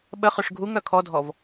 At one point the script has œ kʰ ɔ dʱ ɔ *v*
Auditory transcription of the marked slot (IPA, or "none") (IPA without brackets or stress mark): v